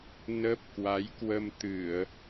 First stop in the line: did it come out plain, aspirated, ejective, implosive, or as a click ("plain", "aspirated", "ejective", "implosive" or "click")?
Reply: plain